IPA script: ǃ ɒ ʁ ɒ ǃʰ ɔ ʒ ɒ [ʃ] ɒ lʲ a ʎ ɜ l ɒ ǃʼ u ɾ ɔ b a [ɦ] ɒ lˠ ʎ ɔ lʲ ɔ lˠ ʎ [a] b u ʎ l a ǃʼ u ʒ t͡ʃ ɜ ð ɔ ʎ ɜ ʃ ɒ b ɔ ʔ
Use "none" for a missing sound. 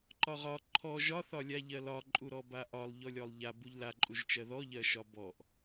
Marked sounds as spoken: θ, ʔ, a

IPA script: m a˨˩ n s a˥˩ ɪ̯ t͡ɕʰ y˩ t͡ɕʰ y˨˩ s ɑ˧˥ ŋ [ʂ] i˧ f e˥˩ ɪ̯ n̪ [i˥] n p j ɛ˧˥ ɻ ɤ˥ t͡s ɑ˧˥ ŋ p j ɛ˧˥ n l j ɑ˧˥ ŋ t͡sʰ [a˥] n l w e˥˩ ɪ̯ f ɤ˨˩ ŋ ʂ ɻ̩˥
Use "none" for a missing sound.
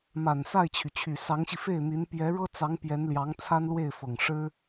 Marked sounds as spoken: ɕ, i˧˥, a˥

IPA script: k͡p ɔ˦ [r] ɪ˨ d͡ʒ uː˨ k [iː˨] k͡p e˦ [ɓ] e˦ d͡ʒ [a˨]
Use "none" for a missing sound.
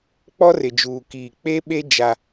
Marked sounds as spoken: r, iː˨, ɓ, a˦

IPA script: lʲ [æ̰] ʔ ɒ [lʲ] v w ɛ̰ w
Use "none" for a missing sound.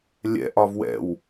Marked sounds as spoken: ɛ̰, none

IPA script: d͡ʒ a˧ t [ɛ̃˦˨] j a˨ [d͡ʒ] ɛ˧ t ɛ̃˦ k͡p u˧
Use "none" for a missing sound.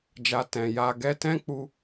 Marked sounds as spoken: ɛ̃˨, ɡ

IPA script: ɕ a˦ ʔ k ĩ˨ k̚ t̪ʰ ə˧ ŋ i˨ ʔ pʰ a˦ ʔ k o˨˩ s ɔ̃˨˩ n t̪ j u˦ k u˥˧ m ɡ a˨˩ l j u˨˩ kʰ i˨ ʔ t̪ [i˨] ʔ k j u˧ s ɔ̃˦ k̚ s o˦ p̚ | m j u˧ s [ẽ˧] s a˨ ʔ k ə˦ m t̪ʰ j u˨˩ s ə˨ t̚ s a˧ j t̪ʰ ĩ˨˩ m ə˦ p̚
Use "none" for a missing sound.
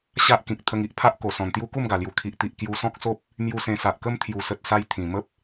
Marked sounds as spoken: i˨, ẽ˧

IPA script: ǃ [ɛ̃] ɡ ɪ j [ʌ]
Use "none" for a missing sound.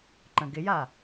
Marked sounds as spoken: ə̃, a

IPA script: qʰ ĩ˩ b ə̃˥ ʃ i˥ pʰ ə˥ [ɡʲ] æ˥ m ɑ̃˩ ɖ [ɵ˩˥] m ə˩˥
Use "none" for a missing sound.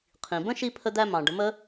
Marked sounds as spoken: d̪, ə˩˥

